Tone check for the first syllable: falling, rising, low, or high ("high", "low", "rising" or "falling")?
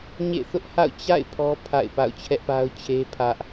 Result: falling